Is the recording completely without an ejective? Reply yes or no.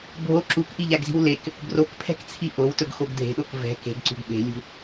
yes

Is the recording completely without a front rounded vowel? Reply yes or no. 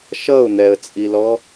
yes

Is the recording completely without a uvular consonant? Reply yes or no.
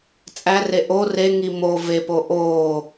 yes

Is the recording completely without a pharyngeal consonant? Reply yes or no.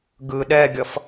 yes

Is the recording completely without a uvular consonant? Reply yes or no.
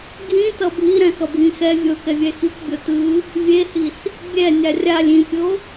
yes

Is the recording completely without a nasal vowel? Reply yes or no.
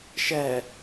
yes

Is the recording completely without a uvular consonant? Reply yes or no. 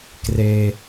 yes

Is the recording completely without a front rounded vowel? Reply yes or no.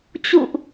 yes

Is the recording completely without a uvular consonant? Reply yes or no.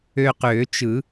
no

